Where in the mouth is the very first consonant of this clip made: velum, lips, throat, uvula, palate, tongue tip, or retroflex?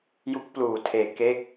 palate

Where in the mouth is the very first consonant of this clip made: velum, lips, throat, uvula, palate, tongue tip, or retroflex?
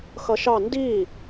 velum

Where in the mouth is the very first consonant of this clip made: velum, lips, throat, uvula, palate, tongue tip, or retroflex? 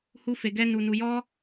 throat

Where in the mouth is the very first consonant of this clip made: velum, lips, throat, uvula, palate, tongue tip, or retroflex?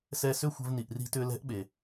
tongue tip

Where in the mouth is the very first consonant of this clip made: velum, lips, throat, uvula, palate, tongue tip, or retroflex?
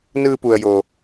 tongue tip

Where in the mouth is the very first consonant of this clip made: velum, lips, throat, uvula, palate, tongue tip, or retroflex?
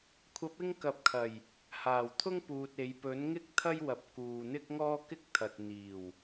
velum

